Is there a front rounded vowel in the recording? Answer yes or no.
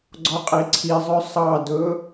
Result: yes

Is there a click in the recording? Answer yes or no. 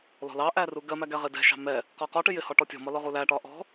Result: no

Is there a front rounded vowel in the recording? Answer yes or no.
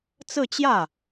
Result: no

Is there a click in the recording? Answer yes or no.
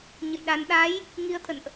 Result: no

